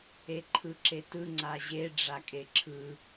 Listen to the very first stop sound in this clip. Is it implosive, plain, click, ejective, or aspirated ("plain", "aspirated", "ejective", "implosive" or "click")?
click